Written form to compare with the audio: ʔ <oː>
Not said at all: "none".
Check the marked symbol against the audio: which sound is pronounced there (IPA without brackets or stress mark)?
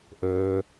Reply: ɵː